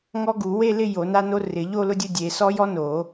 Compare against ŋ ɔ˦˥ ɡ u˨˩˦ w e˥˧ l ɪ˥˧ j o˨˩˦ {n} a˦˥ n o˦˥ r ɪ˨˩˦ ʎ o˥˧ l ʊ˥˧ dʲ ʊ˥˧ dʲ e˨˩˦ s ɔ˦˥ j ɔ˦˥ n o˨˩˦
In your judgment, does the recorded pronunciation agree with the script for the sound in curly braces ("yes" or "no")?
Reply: yes